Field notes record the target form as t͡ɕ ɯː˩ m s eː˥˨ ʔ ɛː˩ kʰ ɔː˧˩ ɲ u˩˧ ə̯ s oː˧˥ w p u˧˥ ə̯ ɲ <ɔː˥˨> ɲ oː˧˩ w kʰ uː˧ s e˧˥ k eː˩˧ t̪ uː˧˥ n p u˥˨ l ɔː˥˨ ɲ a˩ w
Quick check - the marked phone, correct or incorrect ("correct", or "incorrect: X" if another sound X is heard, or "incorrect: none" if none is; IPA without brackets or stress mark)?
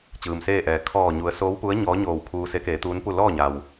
incorrect: ɔː˧˥